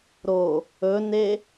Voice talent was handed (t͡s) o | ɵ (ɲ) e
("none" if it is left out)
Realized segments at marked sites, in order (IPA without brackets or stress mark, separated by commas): ɾ, n